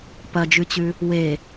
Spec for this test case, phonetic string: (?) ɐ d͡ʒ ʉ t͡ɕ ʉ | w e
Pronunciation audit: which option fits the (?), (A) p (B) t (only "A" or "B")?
A